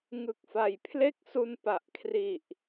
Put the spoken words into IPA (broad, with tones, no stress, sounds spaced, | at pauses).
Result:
ŋ ɯ˨˩ k̚ f a˨˩ j pʰ l e˥˩ k̚ s u˧ n p a˨˩ ʔ kʰ r i˨˩ ʔ